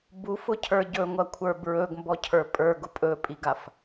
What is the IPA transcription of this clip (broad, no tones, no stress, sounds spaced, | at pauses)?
b u f ʊ cʰ ə˞ ɟ ɵ ŋʷ ɐ kʷʰ ə˞ b ɹ ɵ ɡ m b ɔ cʰ ə˞ pʼ ə˞ ɡ ʊ pʼ ɵ pʼ i ɡ a f